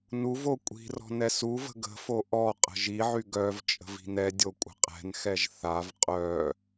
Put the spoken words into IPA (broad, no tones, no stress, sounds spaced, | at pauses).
n u v o kʷʼ i̤ r ɔ̤ n ɛ s u v ə̤ ɡ ə̤ f o ʔ ɔ qʼ ə̤ ʒ i ʕ y ɡ œ v t͡ʃʼ ə̤ v i̤ n ɛ dʲ o kʷʼ ə̤ qʼ ɛ̤ n x ɛ ʒ θ a v qʼ œ